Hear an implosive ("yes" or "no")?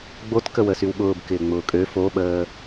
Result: yes